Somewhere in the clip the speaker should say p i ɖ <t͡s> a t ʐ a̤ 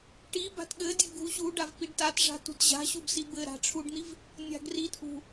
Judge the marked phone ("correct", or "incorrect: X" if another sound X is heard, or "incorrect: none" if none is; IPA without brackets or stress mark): incorrect: t